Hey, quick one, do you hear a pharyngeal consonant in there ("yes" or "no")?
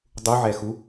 yes